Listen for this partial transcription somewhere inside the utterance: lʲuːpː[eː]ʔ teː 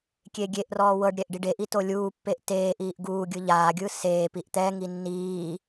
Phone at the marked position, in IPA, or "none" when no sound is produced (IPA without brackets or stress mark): e